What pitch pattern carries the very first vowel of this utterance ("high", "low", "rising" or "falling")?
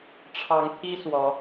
rising